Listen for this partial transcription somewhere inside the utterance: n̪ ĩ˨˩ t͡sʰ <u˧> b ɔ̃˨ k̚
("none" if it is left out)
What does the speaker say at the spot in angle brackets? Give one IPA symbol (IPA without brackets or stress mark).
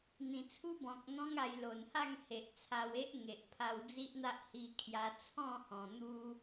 u˦